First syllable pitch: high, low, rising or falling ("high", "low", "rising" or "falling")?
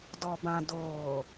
low